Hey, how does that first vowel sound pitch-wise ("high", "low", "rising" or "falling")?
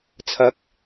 rising